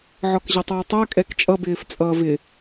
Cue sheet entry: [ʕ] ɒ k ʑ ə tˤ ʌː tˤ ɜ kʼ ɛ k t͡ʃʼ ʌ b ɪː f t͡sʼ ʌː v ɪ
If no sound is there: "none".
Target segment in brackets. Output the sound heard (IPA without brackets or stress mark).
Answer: ʕ